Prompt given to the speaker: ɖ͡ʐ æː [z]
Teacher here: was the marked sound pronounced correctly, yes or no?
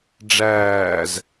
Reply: yes